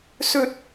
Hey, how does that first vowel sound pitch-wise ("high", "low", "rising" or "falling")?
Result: high